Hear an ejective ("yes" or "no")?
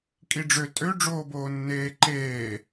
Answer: yes